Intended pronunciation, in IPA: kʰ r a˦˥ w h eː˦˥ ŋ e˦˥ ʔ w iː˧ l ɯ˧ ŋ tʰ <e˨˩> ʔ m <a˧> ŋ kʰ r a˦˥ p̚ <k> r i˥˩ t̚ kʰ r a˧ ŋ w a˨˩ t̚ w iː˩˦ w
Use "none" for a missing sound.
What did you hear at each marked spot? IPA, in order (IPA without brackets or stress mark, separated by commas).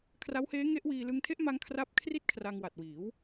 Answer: e˦˥, a˧, kʰ